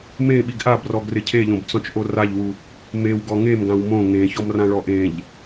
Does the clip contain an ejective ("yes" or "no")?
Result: no